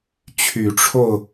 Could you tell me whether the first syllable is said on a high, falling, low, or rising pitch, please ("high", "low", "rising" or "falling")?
rising